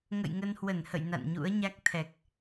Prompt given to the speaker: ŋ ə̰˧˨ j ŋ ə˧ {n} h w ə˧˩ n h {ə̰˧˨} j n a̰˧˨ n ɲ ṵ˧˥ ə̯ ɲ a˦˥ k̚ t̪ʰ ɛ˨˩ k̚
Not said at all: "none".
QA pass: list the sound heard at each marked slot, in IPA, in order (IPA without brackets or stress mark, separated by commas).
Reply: n, ə̰˧˨